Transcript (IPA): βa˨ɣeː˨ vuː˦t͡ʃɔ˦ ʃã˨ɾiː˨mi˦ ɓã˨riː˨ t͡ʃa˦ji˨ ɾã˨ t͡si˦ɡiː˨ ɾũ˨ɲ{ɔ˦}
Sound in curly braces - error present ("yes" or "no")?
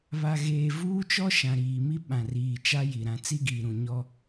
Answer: no